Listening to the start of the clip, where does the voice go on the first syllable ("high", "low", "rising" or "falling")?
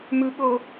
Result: low